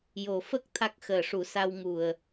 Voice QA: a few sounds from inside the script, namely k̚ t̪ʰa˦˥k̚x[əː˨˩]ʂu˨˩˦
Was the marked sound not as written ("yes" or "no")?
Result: no